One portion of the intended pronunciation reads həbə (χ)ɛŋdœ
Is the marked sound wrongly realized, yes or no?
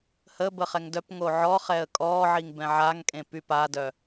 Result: no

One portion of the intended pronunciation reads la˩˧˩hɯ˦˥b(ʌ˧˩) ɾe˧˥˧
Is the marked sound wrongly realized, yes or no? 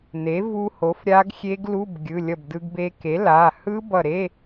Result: no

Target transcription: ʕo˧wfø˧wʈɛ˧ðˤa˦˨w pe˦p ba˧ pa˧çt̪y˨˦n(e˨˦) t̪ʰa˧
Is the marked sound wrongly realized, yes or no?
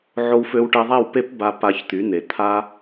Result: yes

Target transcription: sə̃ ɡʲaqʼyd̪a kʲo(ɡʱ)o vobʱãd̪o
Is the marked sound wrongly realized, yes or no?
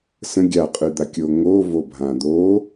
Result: yes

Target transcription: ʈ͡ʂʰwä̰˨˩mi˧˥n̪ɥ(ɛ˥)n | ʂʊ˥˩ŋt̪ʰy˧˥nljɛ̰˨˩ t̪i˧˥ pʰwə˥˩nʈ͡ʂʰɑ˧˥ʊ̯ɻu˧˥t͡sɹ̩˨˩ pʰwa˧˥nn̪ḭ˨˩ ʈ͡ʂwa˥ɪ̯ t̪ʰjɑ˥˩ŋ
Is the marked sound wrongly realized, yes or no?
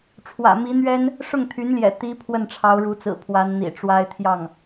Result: no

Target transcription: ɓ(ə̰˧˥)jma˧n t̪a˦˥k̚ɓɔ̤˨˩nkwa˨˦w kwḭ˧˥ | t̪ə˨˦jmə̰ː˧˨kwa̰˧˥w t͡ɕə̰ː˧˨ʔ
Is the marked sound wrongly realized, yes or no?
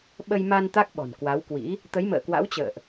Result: yes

